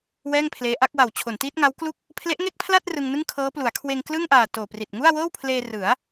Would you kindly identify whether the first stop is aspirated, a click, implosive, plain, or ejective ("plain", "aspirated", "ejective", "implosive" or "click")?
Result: aspirated